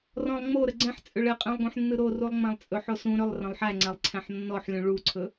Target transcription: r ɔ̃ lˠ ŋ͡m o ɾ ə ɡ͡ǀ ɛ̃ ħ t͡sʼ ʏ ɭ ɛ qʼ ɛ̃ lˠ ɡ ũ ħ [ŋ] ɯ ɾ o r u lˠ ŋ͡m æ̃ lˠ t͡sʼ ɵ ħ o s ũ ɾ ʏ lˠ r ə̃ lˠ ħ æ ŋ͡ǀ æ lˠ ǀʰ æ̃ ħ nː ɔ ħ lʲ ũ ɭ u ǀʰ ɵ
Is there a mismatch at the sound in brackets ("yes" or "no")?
yes